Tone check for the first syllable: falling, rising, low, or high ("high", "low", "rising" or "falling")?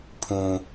high